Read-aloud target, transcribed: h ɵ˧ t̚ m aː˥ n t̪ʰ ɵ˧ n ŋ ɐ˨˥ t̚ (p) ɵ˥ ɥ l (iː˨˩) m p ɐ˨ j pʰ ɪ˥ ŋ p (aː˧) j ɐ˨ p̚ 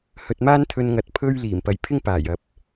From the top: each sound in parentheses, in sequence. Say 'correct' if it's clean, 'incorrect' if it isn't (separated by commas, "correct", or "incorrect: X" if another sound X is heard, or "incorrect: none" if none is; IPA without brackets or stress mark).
incorrect: pʰ, correct, incorrect: aː˨˩